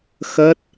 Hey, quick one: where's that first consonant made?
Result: velum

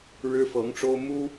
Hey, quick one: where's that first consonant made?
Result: retroflex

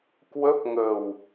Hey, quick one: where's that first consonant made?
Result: velum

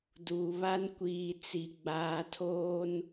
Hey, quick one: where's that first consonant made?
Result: tongue tip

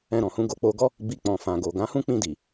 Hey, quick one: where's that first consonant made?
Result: tongue tip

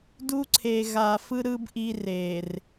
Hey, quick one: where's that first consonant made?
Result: tongue tip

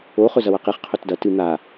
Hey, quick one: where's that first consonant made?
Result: uvula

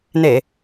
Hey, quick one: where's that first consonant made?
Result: tongue tip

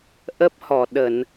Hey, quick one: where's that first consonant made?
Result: throat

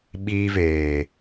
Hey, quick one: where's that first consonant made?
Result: lips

